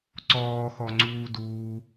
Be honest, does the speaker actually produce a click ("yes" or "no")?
yes